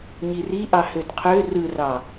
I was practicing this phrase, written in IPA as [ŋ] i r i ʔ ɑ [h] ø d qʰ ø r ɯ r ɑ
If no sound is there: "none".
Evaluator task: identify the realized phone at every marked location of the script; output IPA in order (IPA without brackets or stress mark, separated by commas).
ɲ, h